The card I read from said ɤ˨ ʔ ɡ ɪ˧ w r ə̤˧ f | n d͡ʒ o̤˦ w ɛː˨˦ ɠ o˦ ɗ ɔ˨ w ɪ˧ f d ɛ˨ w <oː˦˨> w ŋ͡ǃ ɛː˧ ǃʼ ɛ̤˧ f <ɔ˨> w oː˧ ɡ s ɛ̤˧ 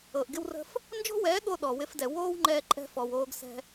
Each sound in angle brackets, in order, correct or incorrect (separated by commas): incorrect, correct